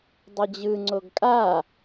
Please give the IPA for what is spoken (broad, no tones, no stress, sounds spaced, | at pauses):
dˤ ʌ d͡ʑ ɯ ŋ͡ǀ o ɡ kʼ a